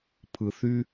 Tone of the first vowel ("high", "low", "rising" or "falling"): low